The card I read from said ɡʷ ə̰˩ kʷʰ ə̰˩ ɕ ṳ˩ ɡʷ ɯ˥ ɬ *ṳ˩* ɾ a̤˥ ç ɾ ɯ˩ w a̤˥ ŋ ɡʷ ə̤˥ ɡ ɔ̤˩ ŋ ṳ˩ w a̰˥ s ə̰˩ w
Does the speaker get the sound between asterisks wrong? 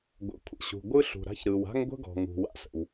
no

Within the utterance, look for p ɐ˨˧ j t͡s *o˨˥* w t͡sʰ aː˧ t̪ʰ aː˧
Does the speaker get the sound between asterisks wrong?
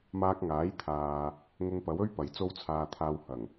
yes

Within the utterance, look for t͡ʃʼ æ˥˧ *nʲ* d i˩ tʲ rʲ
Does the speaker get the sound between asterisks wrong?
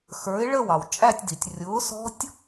yes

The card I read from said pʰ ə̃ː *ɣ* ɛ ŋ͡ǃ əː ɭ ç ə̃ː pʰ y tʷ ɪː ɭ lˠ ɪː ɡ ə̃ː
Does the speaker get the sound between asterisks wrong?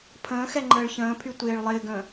yes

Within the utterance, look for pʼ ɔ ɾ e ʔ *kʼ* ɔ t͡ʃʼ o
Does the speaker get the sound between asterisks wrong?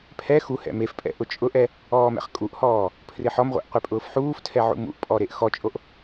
yes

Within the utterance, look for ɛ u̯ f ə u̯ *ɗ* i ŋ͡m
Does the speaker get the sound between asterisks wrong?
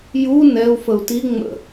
yes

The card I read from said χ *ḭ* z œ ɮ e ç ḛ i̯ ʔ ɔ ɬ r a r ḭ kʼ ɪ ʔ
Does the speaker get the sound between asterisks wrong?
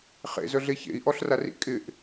yes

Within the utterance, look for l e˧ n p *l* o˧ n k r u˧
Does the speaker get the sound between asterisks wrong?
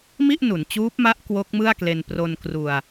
yes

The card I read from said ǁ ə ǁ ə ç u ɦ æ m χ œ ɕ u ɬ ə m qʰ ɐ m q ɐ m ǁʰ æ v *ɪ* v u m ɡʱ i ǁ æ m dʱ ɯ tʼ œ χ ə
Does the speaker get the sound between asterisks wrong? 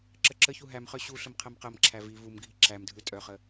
yes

